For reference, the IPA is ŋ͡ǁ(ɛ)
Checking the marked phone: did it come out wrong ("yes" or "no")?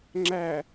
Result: yes